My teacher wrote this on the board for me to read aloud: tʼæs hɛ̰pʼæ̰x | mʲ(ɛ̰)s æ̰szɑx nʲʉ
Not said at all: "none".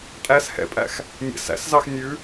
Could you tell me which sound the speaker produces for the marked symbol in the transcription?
æ̰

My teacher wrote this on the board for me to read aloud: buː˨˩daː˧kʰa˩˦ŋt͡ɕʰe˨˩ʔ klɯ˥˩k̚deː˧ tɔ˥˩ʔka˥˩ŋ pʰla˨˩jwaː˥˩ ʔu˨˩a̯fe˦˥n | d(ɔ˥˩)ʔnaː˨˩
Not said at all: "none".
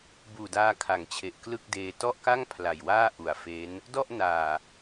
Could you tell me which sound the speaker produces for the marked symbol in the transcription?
ɔ˥˩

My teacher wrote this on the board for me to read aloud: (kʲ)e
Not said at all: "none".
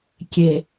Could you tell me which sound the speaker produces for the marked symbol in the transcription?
kʲ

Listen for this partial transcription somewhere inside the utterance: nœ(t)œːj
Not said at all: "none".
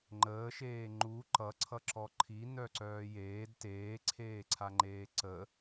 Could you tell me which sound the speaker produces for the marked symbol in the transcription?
ǀ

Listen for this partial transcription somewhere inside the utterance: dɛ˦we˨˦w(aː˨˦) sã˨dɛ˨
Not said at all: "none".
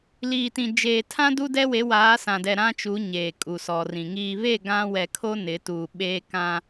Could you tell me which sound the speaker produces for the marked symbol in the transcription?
aː˨˦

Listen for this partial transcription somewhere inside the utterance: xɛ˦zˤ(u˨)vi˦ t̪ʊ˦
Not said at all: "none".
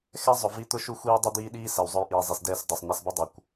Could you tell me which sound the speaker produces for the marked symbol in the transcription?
ʊ˨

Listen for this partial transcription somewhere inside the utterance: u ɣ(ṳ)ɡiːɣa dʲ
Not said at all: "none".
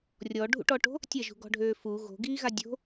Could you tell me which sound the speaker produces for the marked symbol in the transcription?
o̤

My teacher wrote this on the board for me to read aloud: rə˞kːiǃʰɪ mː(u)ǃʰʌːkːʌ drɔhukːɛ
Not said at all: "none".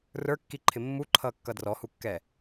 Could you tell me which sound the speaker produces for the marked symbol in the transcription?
u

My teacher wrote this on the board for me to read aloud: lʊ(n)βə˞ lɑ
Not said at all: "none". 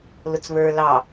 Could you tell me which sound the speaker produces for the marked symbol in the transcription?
t͡s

